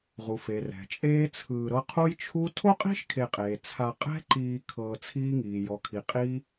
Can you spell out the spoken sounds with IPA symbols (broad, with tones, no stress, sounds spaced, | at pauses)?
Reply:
ʁ u˩ f e˩ r ɛ̤˩ t͡ʃʼ eː˦ t͡sʰ ɯː˨ ɾ ɤ˦ qʰ u˦ j t͡ʃʰ u˦ tʰ o˥ qʼ i̤˥ ʃ kʰ e˨ qʼ eː˩ t͡sʰ a˨ qʼ ɛ̤˦ ǃ iː˨ kʰ ɤː˨ t͡sʰ iː˦ ŋ iː˩ j ɔ˩ kʰ i˩ qʼ iː˦